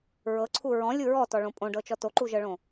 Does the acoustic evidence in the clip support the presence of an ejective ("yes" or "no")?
yes